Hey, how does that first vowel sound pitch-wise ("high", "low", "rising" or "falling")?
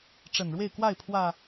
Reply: low